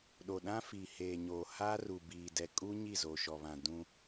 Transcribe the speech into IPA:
ɗ o˨ ɗ ã˦ f i˨ h eː˨ ɲ oː˨ h aː˦ r u˨ b iː˨ d ɛ˨ kʼ u˦ ɲ i˦˨ z o˨ ʃ ɔ˨ β ã˨ d ũ˦

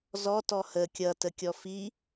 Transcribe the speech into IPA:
z ɔ t ɔ h ə kʲ ʌ t ə kʲ ɔ f i

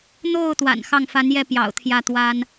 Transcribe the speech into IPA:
n̪ o˥˩ ʊ̯ t̪ w a̰˨˩ n x ɑ˥˩ ŋ f a˧˥ n j ɛ˥˩ p j ɑ̰˨˩ ʊ̯ t̪ʰ j ä˥˩ t̪ w a˥ n

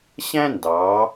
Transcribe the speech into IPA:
ɕ æ̃˥ n d ɑ˩˧

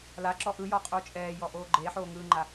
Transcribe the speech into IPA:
l a ǁ ɔ ʔ ɯ j ɔ qʼ uː t͡ʃʼ ɛː j ɔ ʔ oː ɡ͡ǃ e ħ oː ŋ ɯː ŋ͡ǃ a

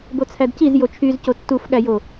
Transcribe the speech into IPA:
b o t͡sʰ æ d c i z j o t͡ʃʰ y z c o tː u f ɠ æ j o

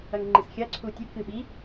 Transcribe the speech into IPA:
ɐ ŋ ŋ͡ǃ i s xʲ ɐ ǀʰ u tʲ ʉ k ɨ ɓ i

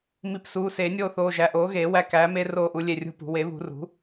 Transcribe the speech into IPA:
m i˨˩˦ p s uː˩˧˩ s eː˨˩˦ nʲ oː˦˨ θ oː˩˧˩ ʒ æ˩˧˩ ʔ oː˩˥ ɣ eː˨˩˦ w æ˦˨ k æː˩˥ m e˦ r oː˦˨ ʔ u˩˥ lʲ e˦˨ rʲ ṳ˦˨ p ṳ˨˩˦ w e˩˥ β ṳ˨˩˦ r ṳ˩˥

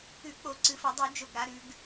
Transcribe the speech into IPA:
ʉ˧˩˧ k͡p o˧˩˧ ǀ ɨ˩˧ f ɐ˧˩˧ dˤ u˧˩˧ d͡ʒ o˧˩ ɡ ɾ a˩˧ ɾ ʉ˩˧ ɡ

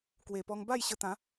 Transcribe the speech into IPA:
k w e˨˩ p ɔ˧ ŋ b a˥˧ j ɕ ə˧ t̪ ã˨˦

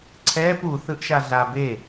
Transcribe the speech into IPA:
ǀʰ ɛː p u θ ɯ ʔ ʃ a ɮ a b e

